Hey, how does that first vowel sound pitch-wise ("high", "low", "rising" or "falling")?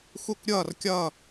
falling